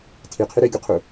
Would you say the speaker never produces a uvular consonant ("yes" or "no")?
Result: no